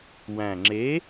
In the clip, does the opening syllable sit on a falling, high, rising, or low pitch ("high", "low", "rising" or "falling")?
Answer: low